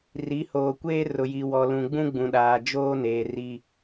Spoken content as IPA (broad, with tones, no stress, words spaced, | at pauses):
ri˨˦hoː˨ kʷeː˦rʊ˨ji˨wɔ˨ lũ˨ɡ͡bũ˦ɡ͡bũ˨ɗaː˨ d͡ʒoː˦ neː˨ri˦